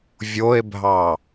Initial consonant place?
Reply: labial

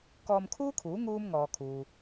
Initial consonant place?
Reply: velar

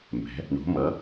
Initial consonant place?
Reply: labial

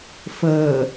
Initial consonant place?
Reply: labial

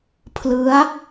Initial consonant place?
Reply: labial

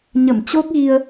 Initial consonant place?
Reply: palatal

